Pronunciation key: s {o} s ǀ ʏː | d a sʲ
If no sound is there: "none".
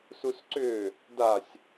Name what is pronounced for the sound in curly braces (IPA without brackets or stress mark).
u